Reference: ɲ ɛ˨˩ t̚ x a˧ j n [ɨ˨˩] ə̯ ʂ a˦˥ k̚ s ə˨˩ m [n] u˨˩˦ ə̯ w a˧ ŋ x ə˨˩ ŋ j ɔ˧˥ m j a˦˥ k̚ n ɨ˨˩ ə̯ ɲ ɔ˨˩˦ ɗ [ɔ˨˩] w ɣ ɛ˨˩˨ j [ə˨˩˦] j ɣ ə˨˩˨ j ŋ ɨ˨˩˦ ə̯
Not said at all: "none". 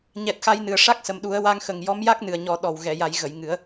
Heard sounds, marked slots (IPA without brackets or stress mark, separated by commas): ɨ˨˩, ɗ, ɔ˨˩, a˨˩˦